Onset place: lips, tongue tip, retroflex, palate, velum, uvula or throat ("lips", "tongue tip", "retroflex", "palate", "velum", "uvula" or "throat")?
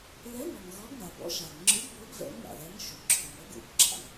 tongue tip